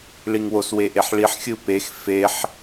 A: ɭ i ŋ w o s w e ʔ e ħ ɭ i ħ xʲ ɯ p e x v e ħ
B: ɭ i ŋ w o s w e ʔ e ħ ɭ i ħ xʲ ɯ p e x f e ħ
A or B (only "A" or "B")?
B